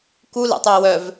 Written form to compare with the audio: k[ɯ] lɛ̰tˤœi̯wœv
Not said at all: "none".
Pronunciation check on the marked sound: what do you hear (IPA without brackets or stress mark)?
u